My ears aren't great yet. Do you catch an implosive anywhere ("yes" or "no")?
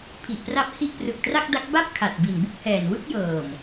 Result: no